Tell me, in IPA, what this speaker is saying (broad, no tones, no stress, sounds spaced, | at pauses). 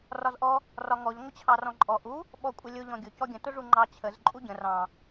r ɒ z ʔ ɔ | r ɒ ŋ ɔ ʎ ŋʷ ə t͡ɕʰ ɑ r ɔ̃ ǃʼ ɔ ʔ u | ɓ ɔ kʷʼ ə lʲ ʊ ʎ ɔ̃ ɡʲ ʊ c ɔ ɡʲ ə̃ t ʊ ʐ u ŋ͡ǃ ɑ t͡ɕʰ ə z ǃʼ u ɟ ə̃ r ɑ̃